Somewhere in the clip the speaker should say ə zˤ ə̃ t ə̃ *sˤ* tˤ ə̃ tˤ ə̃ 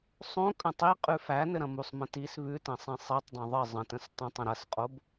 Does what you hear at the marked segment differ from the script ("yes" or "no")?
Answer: yes